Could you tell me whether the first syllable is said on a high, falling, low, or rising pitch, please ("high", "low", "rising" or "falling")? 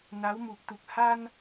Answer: rising